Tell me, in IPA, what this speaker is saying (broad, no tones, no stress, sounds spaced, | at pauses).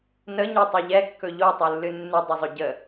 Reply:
n ə ɲ ø tˤ ø ʎ ɛ kː ɵ ʎ o tˤ u lː ɨ nː ɨ dˤ ə zˤ ɵ ɟ ə